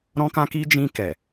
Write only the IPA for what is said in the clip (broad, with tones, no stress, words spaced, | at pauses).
ɾɔ̃˧kã˧ki˧ d͡ʒĩ˧kɛ˨